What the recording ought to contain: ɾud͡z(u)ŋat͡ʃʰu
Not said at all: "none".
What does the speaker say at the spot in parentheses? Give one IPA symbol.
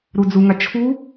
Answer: u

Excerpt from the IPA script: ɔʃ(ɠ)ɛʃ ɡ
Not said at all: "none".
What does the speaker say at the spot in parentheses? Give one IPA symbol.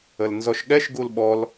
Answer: ɠ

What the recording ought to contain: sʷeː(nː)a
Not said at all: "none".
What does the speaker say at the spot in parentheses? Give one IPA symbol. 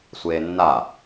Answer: nː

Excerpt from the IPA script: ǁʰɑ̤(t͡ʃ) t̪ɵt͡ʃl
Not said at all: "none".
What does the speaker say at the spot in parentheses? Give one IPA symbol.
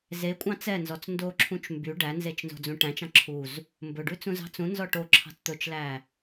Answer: t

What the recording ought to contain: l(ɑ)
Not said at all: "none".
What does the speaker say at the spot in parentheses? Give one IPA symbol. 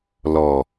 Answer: ɔ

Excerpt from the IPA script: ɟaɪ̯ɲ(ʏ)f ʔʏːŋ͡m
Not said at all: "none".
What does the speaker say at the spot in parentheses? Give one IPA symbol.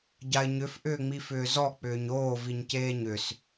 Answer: ʏ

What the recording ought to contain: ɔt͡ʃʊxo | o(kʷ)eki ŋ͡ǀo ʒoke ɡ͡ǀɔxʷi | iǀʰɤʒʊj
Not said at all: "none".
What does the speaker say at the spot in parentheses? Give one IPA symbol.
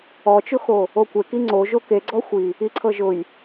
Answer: kʷ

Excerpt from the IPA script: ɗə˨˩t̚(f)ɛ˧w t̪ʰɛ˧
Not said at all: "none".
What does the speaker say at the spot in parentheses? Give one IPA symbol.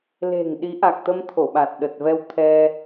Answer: v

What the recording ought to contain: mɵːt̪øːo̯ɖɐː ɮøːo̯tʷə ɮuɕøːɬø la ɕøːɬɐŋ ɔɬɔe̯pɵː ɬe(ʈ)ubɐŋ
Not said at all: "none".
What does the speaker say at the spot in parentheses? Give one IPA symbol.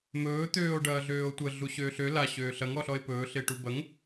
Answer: ʈ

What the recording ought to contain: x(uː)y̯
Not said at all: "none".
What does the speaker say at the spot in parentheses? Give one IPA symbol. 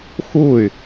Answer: uː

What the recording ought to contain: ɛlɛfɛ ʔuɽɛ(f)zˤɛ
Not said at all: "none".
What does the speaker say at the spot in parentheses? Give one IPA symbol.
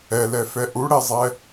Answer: none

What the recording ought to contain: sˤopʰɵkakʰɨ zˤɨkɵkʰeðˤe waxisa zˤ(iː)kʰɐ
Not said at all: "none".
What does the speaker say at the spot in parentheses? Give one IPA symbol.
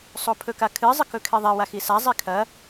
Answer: i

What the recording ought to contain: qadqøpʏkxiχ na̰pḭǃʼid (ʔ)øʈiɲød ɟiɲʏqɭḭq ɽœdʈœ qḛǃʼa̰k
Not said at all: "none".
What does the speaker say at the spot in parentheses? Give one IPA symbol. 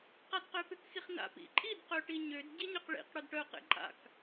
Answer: q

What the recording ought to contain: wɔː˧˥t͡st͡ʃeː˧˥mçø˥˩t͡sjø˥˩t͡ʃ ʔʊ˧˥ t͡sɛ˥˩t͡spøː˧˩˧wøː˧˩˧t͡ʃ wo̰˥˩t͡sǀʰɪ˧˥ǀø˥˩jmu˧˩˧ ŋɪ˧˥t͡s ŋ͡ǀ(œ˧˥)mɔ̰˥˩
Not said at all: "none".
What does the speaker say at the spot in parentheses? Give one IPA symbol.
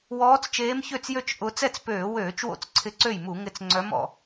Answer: œ˧˥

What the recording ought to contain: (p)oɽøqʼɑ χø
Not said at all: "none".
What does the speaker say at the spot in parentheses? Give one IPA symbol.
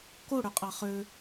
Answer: k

